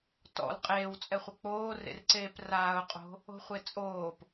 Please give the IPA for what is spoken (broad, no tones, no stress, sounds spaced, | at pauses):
t ɔ̰ l qʼ eː w t͡sʼ ɛ χʷ ɘ k͡p oː r ḛ r ǀ eː p r aː ʊ̯ qʼ o̤ | o̤ χʷ e t͡sʼ oː p